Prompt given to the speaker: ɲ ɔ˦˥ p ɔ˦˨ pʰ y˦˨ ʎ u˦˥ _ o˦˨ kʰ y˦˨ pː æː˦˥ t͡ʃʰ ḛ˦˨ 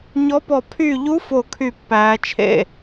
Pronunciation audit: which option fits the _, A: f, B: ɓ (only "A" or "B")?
A